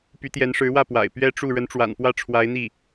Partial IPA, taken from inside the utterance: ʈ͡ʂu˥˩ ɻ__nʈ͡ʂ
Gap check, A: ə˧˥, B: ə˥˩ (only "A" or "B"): A